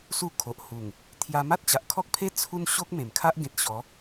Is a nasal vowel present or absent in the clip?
present